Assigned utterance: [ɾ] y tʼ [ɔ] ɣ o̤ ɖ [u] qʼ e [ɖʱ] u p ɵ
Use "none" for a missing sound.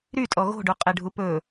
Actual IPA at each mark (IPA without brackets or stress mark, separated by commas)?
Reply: ɾ, ɔ, u, ɖʱ